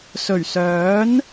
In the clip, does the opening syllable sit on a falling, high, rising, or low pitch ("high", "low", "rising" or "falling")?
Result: low